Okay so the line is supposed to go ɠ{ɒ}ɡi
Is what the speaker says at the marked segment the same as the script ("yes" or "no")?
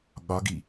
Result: yes